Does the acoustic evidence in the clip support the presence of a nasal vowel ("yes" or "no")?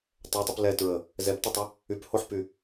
no